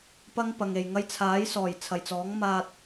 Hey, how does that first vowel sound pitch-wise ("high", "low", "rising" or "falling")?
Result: high